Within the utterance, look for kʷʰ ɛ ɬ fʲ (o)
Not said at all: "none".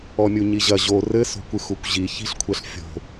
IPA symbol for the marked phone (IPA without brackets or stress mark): o̤